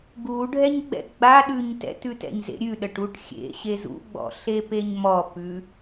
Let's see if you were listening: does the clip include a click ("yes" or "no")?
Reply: no